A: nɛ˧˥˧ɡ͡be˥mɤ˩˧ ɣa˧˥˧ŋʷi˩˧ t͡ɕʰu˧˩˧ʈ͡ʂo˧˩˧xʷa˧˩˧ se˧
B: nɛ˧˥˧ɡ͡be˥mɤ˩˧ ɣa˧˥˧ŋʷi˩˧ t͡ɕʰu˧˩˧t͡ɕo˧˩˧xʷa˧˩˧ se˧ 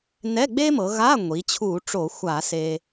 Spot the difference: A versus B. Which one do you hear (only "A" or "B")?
A